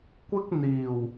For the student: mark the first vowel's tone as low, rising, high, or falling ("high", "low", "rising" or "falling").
high